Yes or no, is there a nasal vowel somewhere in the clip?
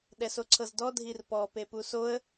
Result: no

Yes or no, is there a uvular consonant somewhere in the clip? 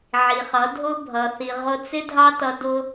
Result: yes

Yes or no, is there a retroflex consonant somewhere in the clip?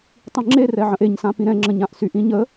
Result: no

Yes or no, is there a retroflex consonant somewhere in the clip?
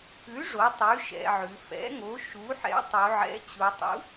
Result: yes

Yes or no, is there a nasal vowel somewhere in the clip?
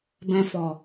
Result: yes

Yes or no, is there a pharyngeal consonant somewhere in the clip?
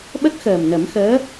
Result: no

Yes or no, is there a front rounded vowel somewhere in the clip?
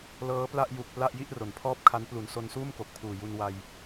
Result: no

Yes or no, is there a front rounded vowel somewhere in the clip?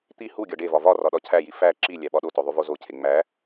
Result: no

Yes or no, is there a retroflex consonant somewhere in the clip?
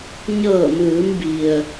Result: no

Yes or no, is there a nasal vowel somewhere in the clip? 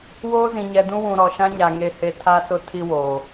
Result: yes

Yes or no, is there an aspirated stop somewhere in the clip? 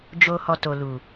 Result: no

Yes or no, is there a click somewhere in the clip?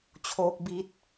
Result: no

